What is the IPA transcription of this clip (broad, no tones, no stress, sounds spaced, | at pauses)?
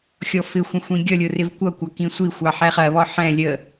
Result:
xʲ ɔ f ɪ xʷ ə̃ xʷ ĩ ɡʲ ʌ lʲ ʊ r ɪ v kʷ ʌ kʷ ɑ k ĩ sʷ i xʷ ɑ ħ ɛ χ ɜ β ɔ ħ ɛ̃ lʲ ə